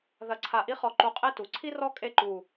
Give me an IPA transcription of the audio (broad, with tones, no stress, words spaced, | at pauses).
ðɐ˧˩ǀʰa˧˩ʔi˥χɔ˧ ǃu˧˩qʼe˥˧tu˩˧ ǀʰi˥rɔ˥˧ kʼe˥ǃu˧˩